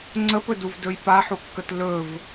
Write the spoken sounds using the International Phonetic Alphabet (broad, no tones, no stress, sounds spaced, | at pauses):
ŋ͡ǀ ə p ɵ d u v d ɵ j p a ħ u kː ə t l ɵ v